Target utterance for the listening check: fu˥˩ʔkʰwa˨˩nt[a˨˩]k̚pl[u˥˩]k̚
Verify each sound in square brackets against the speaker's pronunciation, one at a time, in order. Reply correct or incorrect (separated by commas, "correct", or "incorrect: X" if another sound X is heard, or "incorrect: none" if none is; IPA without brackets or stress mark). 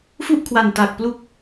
correct, incorrect: u˦˥